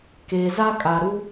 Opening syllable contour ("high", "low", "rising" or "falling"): low